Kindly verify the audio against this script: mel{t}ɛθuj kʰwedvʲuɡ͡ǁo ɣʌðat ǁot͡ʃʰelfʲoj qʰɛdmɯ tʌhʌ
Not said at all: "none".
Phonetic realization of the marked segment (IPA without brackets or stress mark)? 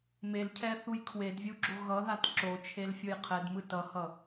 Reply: cʰ